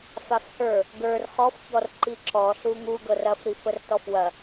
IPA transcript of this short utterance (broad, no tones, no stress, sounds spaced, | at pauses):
f a f h ə˞ | ɡ ə˞ r χ ɔ f ç ɔ r ǃ i ǁ ɔ ɬ u ŋ u ɡ ɤ r ɐ f ɾ i f ə r t ɔ f w ɐ